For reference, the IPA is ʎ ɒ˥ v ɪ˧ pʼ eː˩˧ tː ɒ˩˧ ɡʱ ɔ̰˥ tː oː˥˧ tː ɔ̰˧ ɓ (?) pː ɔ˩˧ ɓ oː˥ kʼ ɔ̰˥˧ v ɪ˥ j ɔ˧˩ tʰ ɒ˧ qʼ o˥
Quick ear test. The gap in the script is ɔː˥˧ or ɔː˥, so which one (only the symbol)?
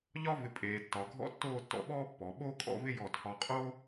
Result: ɔː˥